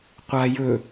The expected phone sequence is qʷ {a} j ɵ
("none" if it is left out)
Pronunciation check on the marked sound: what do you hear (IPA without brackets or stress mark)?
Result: a